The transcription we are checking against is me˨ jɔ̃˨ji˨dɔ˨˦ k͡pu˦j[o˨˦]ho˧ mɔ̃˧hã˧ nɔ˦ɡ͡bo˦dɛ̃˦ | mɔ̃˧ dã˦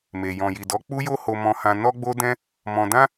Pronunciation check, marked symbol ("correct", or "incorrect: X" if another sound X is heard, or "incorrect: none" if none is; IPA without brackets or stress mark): incorrect: o˦